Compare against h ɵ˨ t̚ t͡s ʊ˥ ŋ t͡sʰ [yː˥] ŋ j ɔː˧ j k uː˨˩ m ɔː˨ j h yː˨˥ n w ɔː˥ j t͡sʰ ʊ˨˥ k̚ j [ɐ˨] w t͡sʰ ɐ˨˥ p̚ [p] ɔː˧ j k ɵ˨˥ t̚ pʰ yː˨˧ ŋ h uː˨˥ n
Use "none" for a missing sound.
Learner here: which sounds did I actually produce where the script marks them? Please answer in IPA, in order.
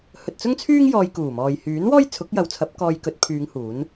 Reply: yː˥, ɐ˨˧, k

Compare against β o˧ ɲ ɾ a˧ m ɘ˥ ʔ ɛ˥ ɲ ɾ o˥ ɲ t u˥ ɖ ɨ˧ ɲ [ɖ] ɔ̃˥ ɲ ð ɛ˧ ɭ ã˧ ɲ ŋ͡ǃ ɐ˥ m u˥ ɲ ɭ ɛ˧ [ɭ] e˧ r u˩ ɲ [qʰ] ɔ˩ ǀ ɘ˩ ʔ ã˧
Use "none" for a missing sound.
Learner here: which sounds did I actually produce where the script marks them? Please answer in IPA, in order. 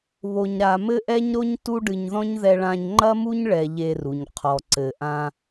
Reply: ð, ʎ, qʰ

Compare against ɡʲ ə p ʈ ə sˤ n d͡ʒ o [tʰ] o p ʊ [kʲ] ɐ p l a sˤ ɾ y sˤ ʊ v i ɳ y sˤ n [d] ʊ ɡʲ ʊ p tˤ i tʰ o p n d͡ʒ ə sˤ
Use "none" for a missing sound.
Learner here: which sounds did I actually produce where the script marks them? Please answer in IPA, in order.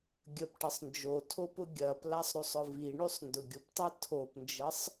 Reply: tʰ, ɡʲ, d

